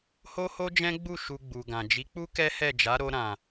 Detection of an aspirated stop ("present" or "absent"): absent